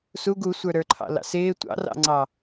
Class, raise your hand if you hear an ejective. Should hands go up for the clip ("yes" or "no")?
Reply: no